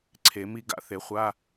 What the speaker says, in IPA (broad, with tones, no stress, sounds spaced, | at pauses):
ǀʰ e˨˩˦ m i˦˥ ɡ a̰˨˩˦ θ e˨˩˦ χʷ a˧˥˧